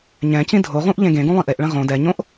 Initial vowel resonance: nasal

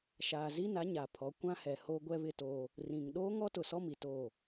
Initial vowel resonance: oral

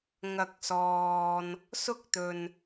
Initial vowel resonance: oral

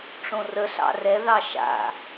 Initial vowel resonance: nasal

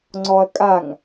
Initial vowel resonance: oral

